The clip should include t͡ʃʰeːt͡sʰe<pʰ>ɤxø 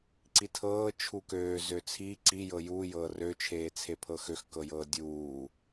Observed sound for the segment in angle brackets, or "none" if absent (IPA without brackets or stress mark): pʰ